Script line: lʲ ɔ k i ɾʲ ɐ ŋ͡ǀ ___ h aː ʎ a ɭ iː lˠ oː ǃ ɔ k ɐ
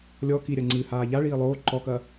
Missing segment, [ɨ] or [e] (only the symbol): ɨ